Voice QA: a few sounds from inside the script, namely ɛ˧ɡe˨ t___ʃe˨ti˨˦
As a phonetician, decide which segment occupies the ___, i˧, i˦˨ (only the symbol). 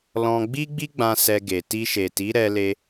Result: i˧